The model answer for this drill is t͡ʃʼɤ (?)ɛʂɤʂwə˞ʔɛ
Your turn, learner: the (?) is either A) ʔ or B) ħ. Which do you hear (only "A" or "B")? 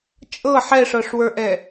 B